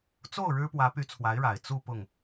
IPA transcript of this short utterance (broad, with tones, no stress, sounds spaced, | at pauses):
t͡s o˥˩ ʊ̯ ɻ ɻ̩˥ p w ä˧˥ p y˧˥ t͡sʰ w a˧˥ ɪ̯ ɻ a˨˩ ɪ̯ t͡s u˥˧ p ʊ˥˩ ŋ